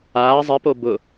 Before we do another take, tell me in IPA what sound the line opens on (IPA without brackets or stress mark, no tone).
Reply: aː